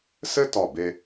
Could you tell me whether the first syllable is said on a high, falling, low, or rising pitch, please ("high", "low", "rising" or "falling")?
high